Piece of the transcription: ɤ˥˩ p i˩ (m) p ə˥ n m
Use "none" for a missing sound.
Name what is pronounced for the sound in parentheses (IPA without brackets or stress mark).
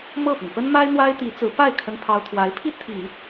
ŋ